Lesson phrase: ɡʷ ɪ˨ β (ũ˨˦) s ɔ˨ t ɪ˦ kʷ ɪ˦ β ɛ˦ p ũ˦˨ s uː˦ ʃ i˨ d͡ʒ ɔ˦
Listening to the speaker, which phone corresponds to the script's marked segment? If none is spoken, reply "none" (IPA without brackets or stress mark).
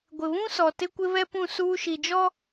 ũ˦